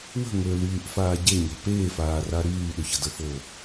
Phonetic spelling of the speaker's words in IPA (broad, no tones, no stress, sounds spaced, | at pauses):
w ə̤ ŋ ø l yː ʔ f aː ɟ e ɲ ɛ̤ p eː f aː r a ɾ yː ɗ ø ç ə d ə f o